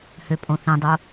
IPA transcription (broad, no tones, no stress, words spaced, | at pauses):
høpʼõθĩdˤo